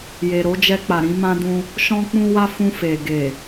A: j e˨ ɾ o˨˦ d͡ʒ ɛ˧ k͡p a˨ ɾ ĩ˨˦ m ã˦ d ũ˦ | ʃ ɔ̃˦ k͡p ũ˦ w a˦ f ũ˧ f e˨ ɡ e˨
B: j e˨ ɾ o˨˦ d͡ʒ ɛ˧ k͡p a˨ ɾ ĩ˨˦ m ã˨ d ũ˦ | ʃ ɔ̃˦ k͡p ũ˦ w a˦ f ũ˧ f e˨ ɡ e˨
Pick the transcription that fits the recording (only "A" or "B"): A